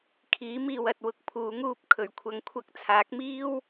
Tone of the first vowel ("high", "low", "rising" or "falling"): rising